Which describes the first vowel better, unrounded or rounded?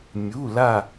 rounded